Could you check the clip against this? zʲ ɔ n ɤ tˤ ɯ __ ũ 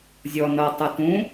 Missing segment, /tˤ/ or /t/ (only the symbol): t